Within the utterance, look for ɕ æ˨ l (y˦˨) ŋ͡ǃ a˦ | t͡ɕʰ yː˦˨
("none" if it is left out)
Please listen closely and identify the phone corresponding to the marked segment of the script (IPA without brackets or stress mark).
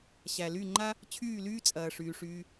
y˦˨